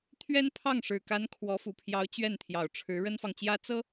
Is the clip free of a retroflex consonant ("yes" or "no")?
no